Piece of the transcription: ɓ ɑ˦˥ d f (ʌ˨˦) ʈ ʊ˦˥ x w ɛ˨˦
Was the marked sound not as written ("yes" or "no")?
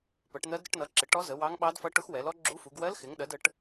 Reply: yes